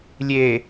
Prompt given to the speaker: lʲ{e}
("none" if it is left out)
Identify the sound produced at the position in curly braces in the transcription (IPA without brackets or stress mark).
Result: e